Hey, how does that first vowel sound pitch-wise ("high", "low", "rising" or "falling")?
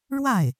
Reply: falling